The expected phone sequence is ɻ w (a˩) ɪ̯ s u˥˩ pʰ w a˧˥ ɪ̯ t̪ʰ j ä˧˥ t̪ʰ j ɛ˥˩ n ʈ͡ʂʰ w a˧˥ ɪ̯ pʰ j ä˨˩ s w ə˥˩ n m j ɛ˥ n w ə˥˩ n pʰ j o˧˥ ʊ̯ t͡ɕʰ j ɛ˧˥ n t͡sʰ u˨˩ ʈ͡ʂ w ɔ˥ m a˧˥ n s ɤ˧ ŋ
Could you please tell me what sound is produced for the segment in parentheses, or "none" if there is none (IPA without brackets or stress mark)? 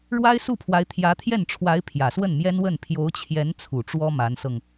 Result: a˥